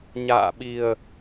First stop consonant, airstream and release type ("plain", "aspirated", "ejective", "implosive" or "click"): implosive